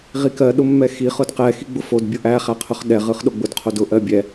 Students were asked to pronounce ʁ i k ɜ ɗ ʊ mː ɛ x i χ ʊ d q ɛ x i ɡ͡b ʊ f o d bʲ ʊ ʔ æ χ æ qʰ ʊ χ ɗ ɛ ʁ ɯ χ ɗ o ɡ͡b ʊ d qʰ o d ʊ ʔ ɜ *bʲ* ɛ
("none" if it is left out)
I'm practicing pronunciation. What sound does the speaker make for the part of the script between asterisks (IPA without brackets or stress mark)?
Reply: bʲ